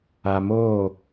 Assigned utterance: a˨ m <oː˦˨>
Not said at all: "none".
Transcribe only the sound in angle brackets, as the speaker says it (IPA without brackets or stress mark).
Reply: oː˦˨